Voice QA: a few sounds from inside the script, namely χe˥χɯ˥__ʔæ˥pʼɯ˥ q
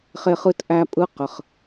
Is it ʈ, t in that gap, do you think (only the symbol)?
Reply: t